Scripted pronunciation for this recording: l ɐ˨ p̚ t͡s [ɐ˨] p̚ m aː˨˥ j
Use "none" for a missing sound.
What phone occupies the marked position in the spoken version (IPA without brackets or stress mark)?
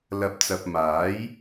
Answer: ɐ˨